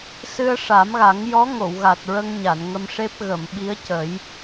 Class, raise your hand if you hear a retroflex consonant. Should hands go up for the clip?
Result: yes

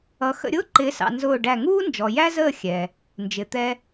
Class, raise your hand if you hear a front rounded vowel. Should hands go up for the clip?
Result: no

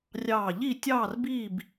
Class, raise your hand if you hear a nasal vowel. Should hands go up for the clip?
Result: no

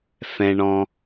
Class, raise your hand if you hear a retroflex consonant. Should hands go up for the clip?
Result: yes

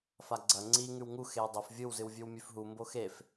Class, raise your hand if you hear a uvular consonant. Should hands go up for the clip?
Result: no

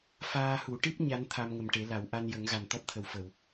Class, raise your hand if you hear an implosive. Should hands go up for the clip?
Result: no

